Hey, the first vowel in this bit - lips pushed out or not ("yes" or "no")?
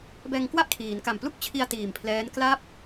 no